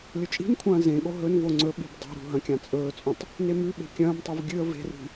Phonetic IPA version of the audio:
lʲ ɵ t͡ʃʼ i̤ n kʷʰ ɐ̃ː z ẽ ɠ o ɦ ɵ n v o ŋ͡ǀ ɵ ɓ i̤ b dˤ o̤ ɾ ṳ ɦ ɐ̃ kʲ ã t͡sʼ ɵː t͡sʼ ũ tˤ | n e m ʉ ɓ e̤ kʲ ɐ̃ː m tˤ u v ɡʲ ɨ ə̯ v e̤ r i̤

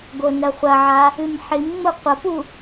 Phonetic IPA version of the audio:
ɡ o n ɐ χʷ ɐ ʕ a | ɨ m ħ i m ŋ͡m o qʷ ɐ p u

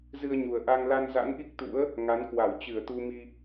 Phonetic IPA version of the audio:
z ɨ˧ ə̯ ɲ u˨˩ ə̯ ʔ a˧ ŋ l a˧ n z a̰˧˥ n ʔ i˦˥ k̚ t̪ ṵ˧˥ ə̯ | ŋ a˨˦ n k w a˧˩ w t͡ɕ ɨ˧˩ ə̯ t̪ u˧ m i˧

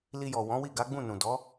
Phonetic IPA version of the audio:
l i˧ j ɔ˨ w ɔ̃˨˦ w i˦˨ ɡ a˨˦ ɡ͡b ũ˦˨ n ũ˨ d ɔ˨˦

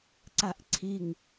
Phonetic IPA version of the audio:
ǀ a ʔ ǀʰ i ŋ

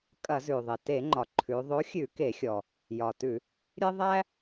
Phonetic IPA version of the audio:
kʼ ɐ˧˩˧ z ʉ˩ ðˤ e˩ t e˧˩˧ ŋ͡ǃ ɒ˩ ǃʰ ʉ˩˧ ðˤ o˨˥ xʲ ʉ˧˩˧ k e˧˩˧ xʲ ɔ˩ | j ɒ˩ t ʉ˧˩˧ | ɾʲ e˦ ðˤ æ˦

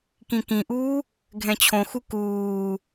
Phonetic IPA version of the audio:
k ĩ k ĩ ʔ uː | ɡʱ ɛ̃ t͡ɕʰ õ x u k uː

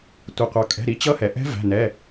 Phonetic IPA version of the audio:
tʷ ʌ˩ qʷ ɑ˩ kʼ ɛ̤˩˧˩ ɾ i˩˧˩ t͡ɕ ʌ˦˥ h ɛ˩ ʔ ɛ̤˦˥ v æ̤˩˧˩ n ɛ˩˧˩

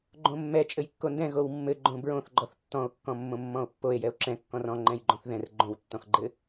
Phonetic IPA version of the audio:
ɡ͡ǃ õ mː ɛ t͡ʃʼ ɘ j kː o n d ɛ̃ ɣ o w mː ɘ ɡ͡ǃ õ b ɹ õ θ ɡ͡ǃ ɔ θ tː ɔ̃ o̯ kː ɔ̃ mː õ mː ɔ̃ o̯ pː o e̯ j ɛ o̯ ǁ ɛ̃ kː ɔ̃ r ɔ̃ ŋ͡ǃ ɛ̃ j ɡ͡ǃ õ θ ð ɛ̃ r ɡ͡ǃ õ w tː ɔ̃ x ɡ͡ǃ ɘ

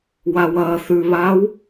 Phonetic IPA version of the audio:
w a w ɐː θ ʉ β aː w

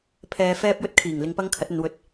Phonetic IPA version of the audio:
pʰ ɛː˧ f ɛː˥ p̚ j ɵ˥ t̚ kʰ iː˨˩ ŋ l ɪ˧ ŋ p ɐ˥ ŋ kʰ ɐ˨˥ t̚ ɵ˨˧ n w ɵ˧ t̚

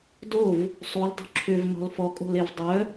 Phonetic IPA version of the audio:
d o v | sˤ u l dˤ ṳ ǁʰ ʏ v n ɔ̤ l f ɔ kʼ o̤ l e v dˤ œ

